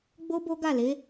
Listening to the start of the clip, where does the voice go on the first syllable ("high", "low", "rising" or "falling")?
high